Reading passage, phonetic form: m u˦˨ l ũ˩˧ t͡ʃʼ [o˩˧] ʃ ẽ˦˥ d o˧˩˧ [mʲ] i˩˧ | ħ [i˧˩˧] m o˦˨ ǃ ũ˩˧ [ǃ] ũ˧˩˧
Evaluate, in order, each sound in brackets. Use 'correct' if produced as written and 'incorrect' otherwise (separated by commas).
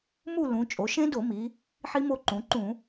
correct, incorrect, incorrect, correct